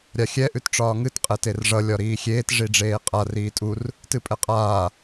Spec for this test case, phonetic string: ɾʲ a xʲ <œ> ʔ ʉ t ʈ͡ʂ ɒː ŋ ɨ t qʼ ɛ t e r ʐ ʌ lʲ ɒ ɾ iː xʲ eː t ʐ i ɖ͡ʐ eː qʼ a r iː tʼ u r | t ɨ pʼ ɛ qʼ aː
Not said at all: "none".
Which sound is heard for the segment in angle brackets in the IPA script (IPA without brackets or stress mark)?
ɛ